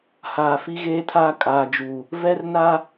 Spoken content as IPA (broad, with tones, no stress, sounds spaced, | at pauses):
h aː˨ f i˦ ɣ eː˦ tʰ aː˦ kʼ aː˨ d͡ʒ uː˨ | v ɛ˦ r n a˦